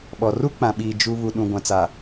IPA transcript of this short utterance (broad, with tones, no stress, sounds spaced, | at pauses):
ɓ ɔ˨ r u˦ k͡p ã˨ ɓ iː˨ d͡ʒ u˨ β u˨ ɗ ũ˨ ɡʷ ã˨ t͡s a˨